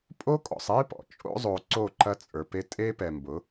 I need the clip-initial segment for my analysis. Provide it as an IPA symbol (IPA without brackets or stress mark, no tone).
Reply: pʼ